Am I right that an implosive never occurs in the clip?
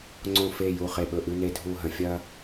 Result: no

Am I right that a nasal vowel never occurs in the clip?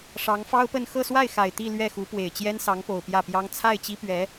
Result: yes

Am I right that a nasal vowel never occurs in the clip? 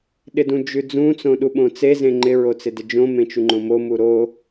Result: no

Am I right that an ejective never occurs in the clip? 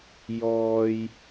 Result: yes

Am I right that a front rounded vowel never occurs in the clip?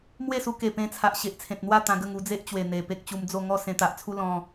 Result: yes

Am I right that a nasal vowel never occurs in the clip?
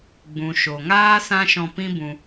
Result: no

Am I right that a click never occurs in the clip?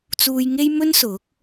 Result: yes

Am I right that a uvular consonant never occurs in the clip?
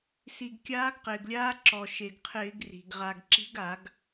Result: no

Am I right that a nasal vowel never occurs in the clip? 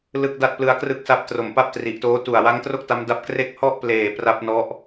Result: yes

